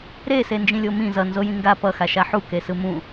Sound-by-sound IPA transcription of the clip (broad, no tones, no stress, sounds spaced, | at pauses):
ɾ e s e n d͡ʒ ĩ lʲ o m ĩ z ʌ n z o j ĩ ŋ ɡ a p ʌ x a ʃ a ħ u k e s ɯ m ũ